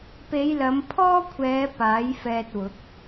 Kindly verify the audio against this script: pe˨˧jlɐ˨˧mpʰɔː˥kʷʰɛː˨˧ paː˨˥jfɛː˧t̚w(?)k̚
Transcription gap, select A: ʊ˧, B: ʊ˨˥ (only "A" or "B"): B